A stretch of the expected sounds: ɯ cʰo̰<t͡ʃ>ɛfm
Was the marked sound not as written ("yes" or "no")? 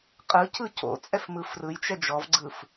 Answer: yes